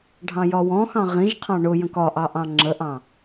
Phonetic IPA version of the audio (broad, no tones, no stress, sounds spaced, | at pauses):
ɖʱ ɑ̃ j ɒ w ɔ̃ x ɑ̃ ʁ ĩ ʒ qʰ ɑ̃ ɳ ʊ j ə̃ k ɒ ʔ ɑ ʔ ɑ̃ ŋ͡ǁ ə ʔ ɑ̃